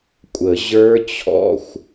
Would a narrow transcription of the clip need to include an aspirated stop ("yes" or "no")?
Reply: yes